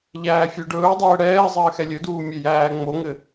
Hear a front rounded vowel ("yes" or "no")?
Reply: yes